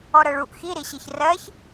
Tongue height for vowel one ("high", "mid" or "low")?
mid